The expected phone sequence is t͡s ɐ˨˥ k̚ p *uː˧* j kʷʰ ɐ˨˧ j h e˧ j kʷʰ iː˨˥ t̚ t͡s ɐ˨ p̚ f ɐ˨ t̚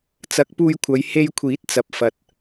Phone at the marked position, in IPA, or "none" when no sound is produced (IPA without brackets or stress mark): uː˧